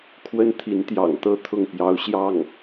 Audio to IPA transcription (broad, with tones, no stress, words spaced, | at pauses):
kʰwə˥nt̪ʰi˧˥nt̪jɑ̰˨˩ŋt̪ɤ˥˧ t̪ʰʊ˥˩ŋpjɑ˧˥ʊ̯ ɕjɑ˥˩ŋ